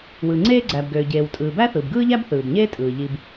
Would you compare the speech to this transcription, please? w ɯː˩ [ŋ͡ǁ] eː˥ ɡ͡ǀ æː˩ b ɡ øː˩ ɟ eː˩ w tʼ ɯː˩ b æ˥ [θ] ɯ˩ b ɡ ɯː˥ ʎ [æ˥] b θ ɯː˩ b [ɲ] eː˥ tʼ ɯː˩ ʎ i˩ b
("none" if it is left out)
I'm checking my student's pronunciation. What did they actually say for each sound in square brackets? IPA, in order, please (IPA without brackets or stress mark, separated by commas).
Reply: ŋ͡ǀ, θ, æ˥, ɲ